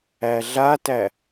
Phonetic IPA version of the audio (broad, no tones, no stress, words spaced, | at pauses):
æɮatæ